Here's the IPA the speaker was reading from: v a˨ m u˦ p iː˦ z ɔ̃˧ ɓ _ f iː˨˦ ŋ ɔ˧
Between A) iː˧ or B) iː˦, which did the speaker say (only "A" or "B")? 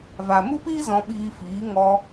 A